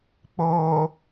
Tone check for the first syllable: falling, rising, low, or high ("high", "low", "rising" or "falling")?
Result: low